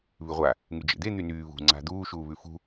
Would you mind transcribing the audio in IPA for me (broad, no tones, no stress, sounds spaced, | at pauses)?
β ʉ ʁʷ a | ŋ y d͡ʒ ḛ d̪ e n̪ y n yː β ṳ ŋ͡ǀ a̤ d̪ uː ʃ uː β ʉ f ṳ